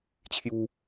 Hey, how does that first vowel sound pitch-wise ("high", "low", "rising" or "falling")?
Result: high